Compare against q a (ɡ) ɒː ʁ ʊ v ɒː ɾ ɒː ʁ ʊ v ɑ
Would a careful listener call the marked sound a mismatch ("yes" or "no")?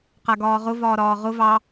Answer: no